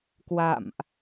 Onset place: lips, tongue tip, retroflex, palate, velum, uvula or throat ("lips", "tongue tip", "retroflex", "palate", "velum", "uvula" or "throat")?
velum